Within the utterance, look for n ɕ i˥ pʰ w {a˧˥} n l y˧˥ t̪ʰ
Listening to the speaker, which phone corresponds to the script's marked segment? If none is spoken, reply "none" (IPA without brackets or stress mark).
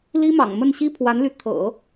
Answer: a˧˥